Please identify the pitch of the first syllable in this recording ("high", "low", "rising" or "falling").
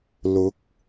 rising